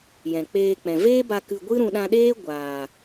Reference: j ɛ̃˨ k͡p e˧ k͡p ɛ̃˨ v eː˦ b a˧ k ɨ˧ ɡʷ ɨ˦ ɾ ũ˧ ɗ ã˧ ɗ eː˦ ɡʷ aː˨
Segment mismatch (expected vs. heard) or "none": e˧ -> eː˧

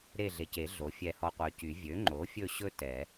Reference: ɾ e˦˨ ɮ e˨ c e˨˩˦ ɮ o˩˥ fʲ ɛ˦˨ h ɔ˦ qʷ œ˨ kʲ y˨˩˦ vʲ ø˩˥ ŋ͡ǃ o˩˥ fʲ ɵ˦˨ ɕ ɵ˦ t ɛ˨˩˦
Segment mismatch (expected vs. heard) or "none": kʲ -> c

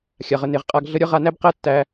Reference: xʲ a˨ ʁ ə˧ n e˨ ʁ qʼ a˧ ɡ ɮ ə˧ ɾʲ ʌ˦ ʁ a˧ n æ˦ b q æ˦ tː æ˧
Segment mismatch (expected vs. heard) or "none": none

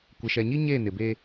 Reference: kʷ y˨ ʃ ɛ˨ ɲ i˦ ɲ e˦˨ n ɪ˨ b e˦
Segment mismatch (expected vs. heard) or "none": y˨ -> ɪ˨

